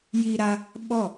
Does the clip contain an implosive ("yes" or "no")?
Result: yes